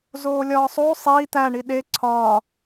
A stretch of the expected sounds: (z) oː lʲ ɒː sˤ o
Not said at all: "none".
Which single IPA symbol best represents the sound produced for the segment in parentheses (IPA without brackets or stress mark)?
z